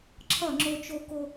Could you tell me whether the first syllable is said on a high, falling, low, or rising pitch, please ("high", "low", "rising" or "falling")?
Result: falling